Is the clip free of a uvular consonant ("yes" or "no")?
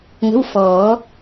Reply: yes